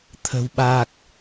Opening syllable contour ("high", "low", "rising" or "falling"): low